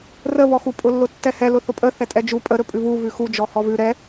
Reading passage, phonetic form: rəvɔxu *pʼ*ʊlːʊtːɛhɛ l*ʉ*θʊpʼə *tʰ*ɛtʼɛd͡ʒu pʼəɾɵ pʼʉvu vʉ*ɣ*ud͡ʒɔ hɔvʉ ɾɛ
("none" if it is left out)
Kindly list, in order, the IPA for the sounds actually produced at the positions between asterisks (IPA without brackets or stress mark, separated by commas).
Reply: pʼ, ʊ, θ, x